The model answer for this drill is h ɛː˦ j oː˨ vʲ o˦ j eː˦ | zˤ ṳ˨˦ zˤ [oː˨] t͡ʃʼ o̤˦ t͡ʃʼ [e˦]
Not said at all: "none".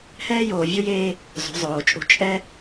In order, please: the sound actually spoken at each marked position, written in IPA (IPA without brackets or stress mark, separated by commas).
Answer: oː˨, ɛ˦